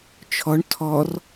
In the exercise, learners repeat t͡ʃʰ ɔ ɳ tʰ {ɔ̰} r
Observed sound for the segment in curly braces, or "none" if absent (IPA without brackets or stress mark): ɔ